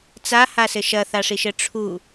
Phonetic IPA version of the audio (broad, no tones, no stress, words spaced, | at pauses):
t͡sahasɘ ʃɐθaʂiʃɘ ʈ͡ʂʰu